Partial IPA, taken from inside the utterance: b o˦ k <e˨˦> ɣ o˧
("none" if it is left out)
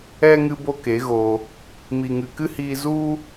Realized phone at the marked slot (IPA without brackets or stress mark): e˨˦